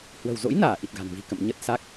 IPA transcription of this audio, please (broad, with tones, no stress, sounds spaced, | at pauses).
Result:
h w ə̤˨˩ w z o̰˧˥ j n aː˧˩ ʔ i˨˩ t̚ ɣ a̤˨˩ n v i̤˨˩ k ə̰˧˨ m ɲ ə˦˥ t̚ s a˦˥ k̚